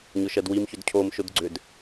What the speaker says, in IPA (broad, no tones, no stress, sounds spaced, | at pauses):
ɲ ʊ ʃ ɜ d w i m ç ʏ d cʰ o m ʃ ʊ d ɡ͡ǀ ʏ d